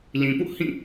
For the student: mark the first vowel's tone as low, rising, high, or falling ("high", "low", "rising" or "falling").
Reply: low